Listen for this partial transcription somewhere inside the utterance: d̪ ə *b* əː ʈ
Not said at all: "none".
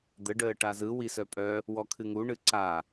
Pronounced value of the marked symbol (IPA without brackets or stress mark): ɖ